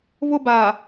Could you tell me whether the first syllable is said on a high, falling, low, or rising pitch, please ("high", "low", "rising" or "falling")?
high